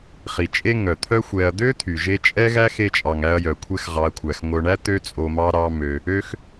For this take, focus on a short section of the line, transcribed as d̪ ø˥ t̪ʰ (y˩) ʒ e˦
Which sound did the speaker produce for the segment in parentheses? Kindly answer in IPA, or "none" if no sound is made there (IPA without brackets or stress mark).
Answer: y˩